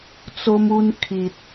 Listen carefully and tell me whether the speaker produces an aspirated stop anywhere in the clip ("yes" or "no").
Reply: yes